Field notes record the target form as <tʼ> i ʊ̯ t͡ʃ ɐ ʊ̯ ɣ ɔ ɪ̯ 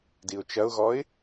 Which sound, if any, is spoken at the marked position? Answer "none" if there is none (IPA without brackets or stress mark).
d